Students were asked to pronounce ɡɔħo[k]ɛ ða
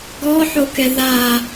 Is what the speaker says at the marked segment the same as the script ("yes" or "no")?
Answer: yes